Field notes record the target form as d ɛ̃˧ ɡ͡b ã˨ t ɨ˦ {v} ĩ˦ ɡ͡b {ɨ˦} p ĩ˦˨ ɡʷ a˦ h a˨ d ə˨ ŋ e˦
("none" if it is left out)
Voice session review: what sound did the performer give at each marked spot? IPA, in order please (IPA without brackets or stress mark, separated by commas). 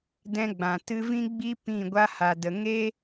v, i˦